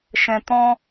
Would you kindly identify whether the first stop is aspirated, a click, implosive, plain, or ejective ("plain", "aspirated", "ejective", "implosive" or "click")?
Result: plain